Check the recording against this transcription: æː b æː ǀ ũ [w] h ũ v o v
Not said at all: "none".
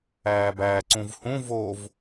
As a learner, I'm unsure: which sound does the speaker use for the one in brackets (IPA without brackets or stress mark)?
v